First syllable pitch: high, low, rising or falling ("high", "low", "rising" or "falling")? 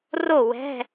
falling